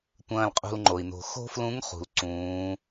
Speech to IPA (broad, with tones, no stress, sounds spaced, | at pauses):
tʷ ɐ̃ː˧ l qʼ ṳ˧ l ŋ͡ǃ o˩ i̯ n o̤˩ x o̤˥ f l ũ˧˥ ŋ χ ṳ˩ l ǀ ũː˩˧